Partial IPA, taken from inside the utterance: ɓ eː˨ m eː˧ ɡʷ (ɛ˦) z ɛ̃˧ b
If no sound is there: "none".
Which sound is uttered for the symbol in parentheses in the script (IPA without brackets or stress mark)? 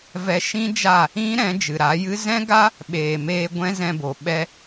ɛ̃˦